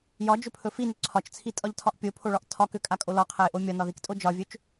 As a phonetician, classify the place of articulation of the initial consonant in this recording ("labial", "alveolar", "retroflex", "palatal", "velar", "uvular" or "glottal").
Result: palatal